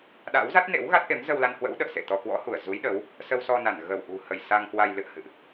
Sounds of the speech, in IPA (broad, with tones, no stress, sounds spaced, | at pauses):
ɗ a̰˧˥ w z a˦˥ t̚ n ḛ˧˥ w ɣ a˦˥ t̚ ʔ e˨˦ m z ə˧ w l a˧ n h w ə̰˧˥ w ɗ ə̰ː˧˨ s ḛ˧˨ t̪ ɔ˧ k w ɔ̰˧˥ h u˧˩ ə̯ z u˨˦ j ɗ ə˨˦ w | s ə˧ w s ɔ˧ n a˧˩ n ɣ ə˧˩ w ʔ ṳ˨˩ h ə˧˩ j s a˧ ŋ k w a˧ j l ɨ̰˧˨ ə̯ h ɨ̰˧˨ ʔ